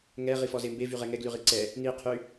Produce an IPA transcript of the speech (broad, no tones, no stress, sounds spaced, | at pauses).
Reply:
ŋ ɛ ʁ i f ɔ z e m b e v y ʁ ɛ ŋ ɛ ɡ l y ʁ i ǀ ɛ | n i qʰ y